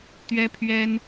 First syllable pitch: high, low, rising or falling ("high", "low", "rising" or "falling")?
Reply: high